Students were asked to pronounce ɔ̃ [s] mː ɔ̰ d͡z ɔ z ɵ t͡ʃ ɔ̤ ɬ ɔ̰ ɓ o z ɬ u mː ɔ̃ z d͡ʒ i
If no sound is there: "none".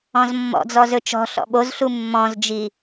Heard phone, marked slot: z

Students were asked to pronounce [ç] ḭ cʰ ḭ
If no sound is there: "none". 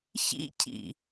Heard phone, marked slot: ç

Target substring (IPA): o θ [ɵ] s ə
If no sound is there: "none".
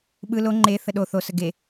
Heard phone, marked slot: o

